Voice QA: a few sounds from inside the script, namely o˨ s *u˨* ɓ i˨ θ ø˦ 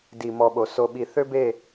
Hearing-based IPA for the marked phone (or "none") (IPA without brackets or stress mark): o˨